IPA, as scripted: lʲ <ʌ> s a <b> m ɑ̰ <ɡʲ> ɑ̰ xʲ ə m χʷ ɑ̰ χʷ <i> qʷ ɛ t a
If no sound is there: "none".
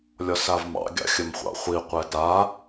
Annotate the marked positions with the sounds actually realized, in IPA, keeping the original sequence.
ɒ, v, ɡʲ, i

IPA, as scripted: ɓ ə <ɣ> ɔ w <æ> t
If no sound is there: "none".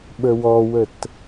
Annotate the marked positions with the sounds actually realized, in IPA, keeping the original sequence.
w, ə

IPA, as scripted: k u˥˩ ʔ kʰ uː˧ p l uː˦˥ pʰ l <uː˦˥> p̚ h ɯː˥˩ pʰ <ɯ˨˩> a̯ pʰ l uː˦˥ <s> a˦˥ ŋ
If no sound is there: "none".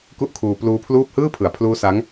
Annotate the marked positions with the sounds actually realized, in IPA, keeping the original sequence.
uː˥˩, ɯ˨˩, s

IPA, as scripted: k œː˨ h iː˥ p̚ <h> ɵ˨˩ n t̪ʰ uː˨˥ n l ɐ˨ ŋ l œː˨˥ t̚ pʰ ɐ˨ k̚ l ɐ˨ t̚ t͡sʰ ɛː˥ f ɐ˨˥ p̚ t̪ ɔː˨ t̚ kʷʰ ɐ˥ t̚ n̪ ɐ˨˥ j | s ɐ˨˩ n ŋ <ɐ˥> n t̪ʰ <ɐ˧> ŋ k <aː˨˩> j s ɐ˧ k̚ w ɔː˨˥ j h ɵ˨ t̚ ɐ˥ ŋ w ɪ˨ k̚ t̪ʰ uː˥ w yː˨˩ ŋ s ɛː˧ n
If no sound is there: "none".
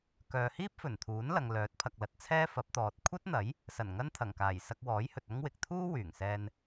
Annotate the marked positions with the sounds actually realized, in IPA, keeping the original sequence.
f, ɐ˥, ɐ˨˩, aː˨˩

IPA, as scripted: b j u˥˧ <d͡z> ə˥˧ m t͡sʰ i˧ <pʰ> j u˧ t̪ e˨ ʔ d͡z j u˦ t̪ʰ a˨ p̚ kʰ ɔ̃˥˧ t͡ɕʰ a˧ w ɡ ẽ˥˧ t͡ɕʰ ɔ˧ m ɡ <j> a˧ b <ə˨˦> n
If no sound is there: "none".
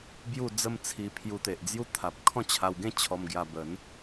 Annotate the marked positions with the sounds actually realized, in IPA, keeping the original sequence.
d͡z, pʰ, j, ə˨˦

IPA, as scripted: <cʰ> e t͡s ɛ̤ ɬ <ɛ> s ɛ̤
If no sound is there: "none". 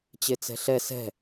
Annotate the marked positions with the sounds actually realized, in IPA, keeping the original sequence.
t͡ɕ, ɛ

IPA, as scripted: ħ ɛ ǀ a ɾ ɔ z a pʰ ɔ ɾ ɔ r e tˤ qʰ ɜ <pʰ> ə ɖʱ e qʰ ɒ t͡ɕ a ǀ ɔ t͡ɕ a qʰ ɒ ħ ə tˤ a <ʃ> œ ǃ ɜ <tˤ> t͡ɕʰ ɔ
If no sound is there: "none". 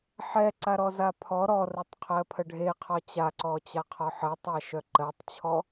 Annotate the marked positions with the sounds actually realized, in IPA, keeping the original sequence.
pʰ, ʃ, tˤ

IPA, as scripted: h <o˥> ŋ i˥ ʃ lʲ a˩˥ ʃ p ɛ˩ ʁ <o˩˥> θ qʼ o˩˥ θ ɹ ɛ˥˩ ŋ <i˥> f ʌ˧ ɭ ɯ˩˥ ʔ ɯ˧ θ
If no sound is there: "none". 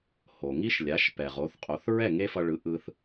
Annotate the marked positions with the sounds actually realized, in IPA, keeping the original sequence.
o˩, o˩˥, e˥

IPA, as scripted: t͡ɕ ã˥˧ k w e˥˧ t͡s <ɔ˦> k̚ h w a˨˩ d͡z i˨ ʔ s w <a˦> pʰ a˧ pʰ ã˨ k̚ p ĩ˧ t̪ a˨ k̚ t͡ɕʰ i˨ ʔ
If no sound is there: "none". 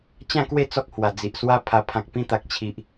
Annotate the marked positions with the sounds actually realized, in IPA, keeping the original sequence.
ɔ˦, a˦

